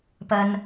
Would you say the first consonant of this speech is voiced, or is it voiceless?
voiceless